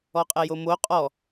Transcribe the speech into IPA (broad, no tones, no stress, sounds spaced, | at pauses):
ɔ qʼ ɛ j o m o qʼ ɔ